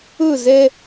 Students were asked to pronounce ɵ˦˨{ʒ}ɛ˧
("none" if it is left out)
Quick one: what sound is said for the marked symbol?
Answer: z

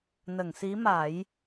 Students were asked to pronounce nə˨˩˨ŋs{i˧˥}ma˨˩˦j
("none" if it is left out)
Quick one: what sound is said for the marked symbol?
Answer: i˧˥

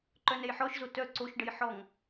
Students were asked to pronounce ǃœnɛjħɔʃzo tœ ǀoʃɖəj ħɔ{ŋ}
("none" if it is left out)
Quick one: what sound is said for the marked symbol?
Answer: ŋ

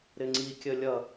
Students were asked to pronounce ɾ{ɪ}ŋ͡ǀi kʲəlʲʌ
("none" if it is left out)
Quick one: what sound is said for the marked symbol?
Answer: ɪ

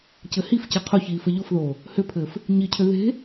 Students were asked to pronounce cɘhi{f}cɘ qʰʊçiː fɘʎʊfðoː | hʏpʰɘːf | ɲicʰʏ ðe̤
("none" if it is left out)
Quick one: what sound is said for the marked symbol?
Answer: f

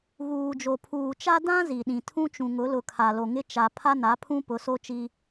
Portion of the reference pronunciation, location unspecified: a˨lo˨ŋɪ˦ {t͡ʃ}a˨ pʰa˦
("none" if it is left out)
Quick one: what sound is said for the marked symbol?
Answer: t͡ʃ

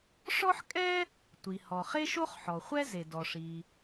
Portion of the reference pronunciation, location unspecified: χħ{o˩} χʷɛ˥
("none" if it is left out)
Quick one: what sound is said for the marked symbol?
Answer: ɔ˩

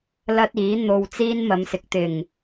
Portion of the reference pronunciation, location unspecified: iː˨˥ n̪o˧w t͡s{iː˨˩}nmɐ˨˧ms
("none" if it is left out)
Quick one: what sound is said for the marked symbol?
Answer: iː˥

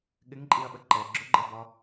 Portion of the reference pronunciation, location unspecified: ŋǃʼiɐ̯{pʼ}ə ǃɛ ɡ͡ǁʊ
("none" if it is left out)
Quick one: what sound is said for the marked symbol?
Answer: ɓ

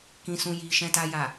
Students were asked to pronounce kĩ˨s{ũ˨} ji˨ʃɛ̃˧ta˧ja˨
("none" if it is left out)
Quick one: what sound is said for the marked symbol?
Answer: ũ˨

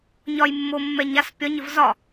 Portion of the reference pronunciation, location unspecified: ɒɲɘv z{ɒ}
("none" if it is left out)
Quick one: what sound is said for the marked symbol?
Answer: ɒ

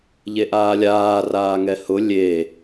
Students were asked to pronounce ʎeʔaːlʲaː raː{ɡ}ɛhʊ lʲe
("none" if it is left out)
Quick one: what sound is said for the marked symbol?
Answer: ŋ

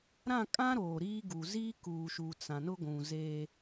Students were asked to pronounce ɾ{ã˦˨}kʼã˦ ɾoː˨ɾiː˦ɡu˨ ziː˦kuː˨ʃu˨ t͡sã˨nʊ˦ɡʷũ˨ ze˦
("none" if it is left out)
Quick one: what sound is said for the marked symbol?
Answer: ã˦˨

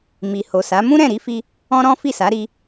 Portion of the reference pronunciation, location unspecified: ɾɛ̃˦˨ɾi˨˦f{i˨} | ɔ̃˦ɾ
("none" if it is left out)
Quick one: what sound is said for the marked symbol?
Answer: i˧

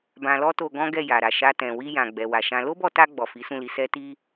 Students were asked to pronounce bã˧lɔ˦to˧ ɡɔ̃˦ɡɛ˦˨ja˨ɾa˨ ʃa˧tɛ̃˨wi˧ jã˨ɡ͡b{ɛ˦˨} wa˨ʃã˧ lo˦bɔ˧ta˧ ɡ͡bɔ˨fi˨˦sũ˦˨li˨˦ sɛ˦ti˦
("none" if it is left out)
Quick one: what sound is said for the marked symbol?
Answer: ɛ˨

